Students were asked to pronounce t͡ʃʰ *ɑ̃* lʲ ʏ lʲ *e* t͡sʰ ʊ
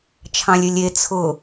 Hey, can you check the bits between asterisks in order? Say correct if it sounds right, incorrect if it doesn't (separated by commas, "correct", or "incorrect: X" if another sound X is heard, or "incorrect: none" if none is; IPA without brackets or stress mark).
correct, correct